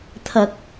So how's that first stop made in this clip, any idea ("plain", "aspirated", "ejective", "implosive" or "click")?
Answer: aspirated